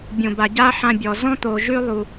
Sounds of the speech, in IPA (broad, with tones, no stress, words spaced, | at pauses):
bʲõ˩ba˩ ɟa˥ ħã˧bʲɔ˩ zɔ̃˥t̪o˩ ʒʉ˥ lˠu˩